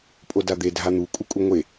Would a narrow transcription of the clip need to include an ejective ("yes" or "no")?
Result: yes